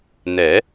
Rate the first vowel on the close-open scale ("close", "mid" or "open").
mid